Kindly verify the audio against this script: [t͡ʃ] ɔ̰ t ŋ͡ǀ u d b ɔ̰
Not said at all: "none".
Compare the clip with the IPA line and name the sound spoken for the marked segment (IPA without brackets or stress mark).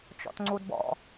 t͡ʃ